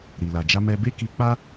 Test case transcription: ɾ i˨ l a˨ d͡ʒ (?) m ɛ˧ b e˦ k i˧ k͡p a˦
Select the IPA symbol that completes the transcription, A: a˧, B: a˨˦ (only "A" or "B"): A